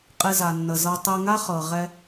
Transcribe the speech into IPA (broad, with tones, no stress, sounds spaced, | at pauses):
qʼ e˧ z a˩ nː ə˩ z ɤ˧ tˤ e˧ ŋ a˥ χ ɤ˩ ʁ ɛ˧